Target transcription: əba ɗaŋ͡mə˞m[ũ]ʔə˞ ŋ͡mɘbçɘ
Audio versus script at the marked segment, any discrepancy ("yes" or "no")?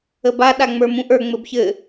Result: no